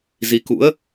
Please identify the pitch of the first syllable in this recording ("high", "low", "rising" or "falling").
rising